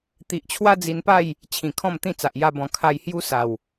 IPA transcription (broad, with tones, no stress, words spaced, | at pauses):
t̪i˨ʔt͡ɕʰwa˦d͡zi˧npa˥˧j | t͡ɕʰĩ˨˩kʰɔ̃˥˧mt̪ĩ˥˧t͡sa˨ʔ ja˧bɔ̃˨˩kʰa˧j hju˦sa˨˩w